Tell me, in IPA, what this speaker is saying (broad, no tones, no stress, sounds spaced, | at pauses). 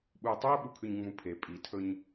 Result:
ɓ u i̯ tˤ ʉ u̯ ɓ u kʰ ʉ ɲ ŋ͡m ũ pʰ e pʼ i tʰ ɵ ɲ